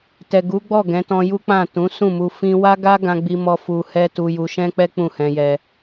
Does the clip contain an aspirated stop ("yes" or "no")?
no